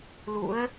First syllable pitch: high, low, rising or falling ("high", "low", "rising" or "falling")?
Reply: rising